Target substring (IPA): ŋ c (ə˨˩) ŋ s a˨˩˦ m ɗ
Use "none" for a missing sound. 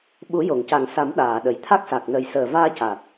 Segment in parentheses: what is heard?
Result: a˨˩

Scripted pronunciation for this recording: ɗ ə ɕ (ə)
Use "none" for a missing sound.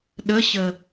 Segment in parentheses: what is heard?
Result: ə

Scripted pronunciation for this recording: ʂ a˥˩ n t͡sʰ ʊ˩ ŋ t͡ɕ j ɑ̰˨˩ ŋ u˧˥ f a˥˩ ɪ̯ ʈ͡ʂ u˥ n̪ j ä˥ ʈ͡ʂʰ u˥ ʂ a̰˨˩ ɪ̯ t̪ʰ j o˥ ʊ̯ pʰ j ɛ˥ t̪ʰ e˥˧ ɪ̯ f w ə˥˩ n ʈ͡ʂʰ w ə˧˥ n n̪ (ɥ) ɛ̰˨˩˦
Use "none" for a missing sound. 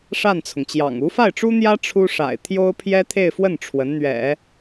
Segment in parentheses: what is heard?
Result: ɥ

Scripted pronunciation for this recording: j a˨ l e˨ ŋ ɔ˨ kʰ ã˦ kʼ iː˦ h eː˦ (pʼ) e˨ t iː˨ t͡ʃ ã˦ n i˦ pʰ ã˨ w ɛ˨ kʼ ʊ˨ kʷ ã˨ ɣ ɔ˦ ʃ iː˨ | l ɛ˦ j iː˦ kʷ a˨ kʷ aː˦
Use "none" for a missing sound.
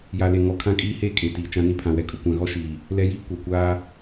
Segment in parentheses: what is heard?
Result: kʼ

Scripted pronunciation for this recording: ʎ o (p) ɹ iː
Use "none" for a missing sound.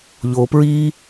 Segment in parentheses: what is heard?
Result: p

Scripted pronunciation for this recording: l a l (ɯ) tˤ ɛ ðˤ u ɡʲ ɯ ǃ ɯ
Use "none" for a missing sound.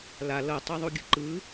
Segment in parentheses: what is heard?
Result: ɤ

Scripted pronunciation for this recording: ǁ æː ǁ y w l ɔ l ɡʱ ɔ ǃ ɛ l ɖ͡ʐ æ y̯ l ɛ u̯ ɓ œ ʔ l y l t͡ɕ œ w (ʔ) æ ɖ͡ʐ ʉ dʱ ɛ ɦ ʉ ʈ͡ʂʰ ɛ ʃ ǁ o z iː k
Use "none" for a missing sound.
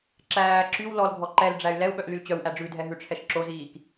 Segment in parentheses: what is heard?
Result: ʔ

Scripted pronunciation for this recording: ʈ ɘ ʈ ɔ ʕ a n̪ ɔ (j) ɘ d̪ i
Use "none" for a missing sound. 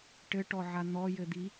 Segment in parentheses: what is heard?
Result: j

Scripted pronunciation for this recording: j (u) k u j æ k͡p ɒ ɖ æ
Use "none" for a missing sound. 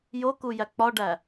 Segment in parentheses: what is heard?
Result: o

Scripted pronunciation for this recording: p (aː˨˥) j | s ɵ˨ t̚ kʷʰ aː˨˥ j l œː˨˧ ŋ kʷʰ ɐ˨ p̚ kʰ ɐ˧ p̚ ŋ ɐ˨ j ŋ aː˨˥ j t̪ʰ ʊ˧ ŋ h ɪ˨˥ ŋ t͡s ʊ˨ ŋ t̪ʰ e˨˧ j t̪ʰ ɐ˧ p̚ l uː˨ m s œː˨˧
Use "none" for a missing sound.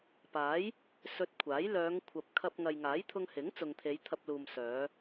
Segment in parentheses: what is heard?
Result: aː˨˥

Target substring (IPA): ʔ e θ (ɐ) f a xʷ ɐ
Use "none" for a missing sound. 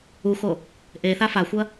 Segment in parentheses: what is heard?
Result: a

